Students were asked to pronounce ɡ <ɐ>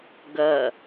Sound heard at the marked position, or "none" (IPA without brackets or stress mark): ɐ